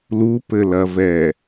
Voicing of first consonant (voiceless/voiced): voiced